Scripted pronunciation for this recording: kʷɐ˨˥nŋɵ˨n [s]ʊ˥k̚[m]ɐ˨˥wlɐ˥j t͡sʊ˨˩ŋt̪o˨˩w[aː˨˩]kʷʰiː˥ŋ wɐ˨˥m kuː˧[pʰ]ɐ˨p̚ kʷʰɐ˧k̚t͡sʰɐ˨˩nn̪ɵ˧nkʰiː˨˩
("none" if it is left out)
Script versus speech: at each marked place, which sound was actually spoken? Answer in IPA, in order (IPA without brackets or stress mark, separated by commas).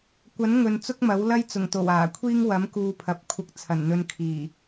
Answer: t͡s, m, aː˨˩, pʰ